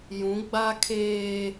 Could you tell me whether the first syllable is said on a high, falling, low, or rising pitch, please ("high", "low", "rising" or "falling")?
rising